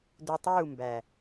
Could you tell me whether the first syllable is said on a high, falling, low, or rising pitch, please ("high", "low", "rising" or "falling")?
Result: low